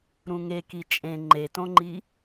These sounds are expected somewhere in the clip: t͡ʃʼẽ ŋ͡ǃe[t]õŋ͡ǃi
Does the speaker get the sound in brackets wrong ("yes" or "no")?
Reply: no